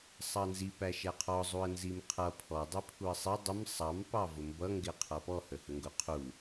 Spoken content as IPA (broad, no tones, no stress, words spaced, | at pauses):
sˤɑnzi pæʃæqʰɔ zˤuə̯nzimqʰʌ pʰɔ dˤipʰuə̯sˤi dˤɪm sˤɑm pɑvʊmbʌ ŋɡɪqʰʌpɔ həhəŋɡʊqʰu